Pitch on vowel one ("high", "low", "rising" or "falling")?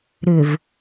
low